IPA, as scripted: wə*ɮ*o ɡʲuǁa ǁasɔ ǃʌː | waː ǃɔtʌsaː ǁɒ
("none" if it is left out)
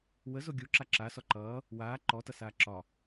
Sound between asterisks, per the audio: z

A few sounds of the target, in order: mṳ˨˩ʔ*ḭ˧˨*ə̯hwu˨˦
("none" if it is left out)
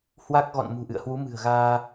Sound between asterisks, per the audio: ɨ̰˧˨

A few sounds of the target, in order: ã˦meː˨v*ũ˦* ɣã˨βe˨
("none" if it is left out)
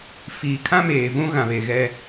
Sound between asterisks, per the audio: ũ˦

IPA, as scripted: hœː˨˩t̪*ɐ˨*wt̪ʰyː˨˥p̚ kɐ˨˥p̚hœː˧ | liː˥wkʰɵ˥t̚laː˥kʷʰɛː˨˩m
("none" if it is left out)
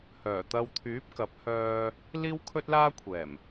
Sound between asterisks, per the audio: ɐ˧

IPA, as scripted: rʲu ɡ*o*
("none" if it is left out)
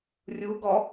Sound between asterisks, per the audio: ɔ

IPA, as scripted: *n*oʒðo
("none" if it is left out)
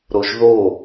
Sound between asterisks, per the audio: ɾ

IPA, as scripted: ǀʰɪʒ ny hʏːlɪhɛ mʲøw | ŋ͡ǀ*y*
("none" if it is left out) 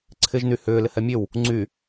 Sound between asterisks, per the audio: y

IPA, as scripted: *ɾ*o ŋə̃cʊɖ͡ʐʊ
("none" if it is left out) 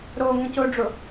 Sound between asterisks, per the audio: ɾ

